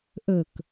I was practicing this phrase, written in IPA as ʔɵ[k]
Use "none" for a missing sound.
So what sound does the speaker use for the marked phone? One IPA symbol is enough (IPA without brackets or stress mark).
k